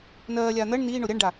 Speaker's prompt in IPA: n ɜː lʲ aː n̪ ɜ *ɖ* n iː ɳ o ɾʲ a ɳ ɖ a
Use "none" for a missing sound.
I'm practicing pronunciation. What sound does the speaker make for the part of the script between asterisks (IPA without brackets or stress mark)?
ɳ